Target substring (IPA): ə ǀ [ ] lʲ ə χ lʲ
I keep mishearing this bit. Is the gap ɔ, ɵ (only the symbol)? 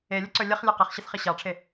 ɵ